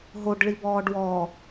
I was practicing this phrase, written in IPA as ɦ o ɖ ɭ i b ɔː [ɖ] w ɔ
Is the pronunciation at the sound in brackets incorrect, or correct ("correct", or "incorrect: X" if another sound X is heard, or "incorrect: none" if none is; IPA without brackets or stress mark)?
correct